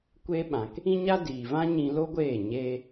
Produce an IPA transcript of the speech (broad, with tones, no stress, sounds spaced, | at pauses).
kʷ e˦ ɓ ã˨ k | ĩ˦ ɲ a˦ d iː˨ v ã˦ ɲ ĩ˧ l o˦ ɡʷ eː˦˨ ɲ eː˧